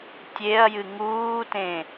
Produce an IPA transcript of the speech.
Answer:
tʲeɐ̯jɨ ŋuːtẽ

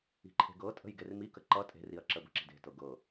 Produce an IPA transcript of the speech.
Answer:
i̤ǃʰe̤ɡɤtʼə̤j ɡermikə ǃʌ tʼe̤riɐ̯ ǁəbə̤ǁi̤d e̤tɤ ɡɤ

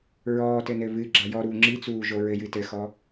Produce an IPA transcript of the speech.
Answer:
ɹɔːtɘ nɘβɨɡ͡ǁa jɔɾuː ŋ͡ǁit͡suː ʒoɹɘjɨ tɘxɔ

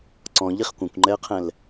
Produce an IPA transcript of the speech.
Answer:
ǀɔ̃ʎiχ kʷɐ̃kʷŋ͡ǃɛə̯qʰɛ̃l

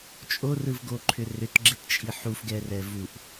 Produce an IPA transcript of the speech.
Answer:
t͡ʃʼorɯvɡoǃʰʏ rʏtɡ͡ǁett͡ʃʼi ħufɡɛrɛ vuʔ

